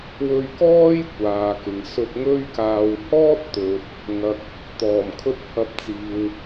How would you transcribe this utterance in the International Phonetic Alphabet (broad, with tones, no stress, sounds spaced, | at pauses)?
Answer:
w ɵ˧ ɥ k ɔː˥ j kʷ aː˨ k ɪ˨ ŋ s ɵ˧ t̚ ŋ ɵ˥ ɥ k aː˧ w h ɔː˥ t̚ t̪ ɵ˨ t̚ | ŋ ɐ˨ k̚ | t̪ ɔː˨˩ m kʰ ɵ˥ t̚ h ɐ˧ p̚ t͡s iː˨ w